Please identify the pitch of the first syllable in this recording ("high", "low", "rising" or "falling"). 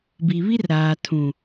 low